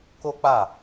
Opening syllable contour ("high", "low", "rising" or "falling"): high